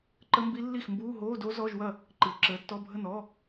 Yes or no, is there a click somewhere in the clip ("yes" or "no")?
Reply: yes